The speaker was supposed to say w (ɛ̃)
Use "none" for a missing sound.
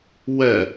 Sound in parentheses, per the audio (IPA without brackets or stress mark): ɛ